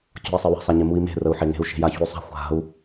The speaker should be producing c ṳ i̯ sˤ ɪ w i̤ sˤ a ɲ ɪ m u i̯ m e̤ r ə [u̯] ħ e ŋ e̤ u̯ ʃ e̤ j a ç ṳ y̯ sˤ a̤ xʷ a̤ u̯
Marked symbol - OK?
yes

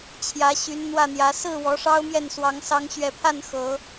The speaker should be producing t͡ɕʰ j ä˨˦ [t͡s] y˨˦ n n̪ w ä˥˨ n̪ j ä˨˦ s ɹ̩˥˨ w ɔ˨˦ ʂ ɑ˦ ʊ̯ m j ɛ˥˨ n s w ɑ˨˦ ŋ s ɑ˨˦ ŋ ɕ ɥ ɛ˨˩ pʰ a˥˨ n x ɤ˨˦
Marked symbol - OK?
no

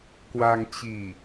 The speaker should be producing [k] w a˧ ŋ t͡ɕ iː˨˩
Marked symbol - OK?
yes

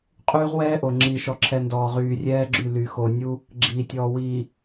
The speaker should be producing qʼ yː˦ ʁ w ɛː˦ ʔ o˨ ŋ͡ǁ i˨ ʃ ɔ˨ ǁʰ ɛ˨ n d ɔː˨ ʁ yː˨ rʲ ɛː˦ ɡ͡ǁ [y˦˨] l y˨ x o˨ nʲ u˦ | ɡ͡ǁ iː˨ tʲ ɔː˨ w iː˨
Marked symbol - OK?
yes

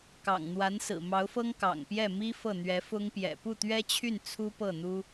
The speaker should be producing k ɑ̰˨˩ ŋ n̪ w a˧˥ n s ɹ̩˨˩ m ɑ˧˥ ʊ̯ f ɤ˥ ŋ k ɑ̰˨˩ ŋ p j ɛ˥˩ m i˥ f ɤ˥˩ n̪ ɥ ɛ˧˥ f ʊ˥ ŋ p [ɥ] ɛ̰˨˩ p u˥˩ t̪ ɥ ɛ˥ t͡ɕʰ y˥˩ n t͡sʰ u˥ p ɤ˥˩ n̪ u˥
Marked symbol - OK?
no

